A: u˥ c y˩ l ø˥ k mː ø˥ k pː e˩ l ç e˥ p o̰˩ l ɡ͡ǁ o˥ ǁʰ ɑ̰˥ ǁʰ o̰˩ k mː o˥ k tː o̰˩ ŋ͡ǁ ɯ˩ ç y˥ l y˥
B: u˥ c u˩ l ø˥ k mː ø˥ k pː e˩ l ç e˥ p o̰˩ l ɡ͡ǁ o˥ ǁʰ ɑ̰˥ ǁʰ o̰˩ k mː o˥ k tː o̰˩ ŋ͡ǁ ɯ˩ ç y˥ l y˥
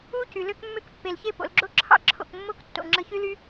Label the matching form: A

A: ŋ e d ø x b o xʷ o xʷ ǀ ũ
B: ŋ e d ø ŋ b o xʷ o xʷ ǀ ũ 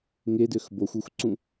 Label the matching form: A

